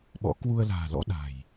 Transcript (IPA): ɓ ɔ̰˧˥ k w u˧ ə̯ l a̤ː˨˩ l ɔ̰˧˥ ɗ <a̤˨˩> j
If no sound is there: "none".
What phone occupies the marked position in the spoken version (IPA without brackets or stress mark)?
a̤˨˩